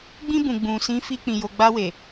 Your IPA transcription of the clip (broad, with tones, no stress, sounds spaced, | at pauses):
ɡ͡b ĩ˧ b ũ˨ ɡ͡b ũ˨ s ĩ˨˦ f i˧ k͡p ĩ˨ j o˨ ɡ͡b a˧ w e˨